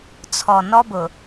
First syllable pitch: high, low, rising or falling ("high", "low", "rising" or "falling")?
low